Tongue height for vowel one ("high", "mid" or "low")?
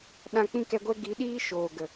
low